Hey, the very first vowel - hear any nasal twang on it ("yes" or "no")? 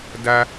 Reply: no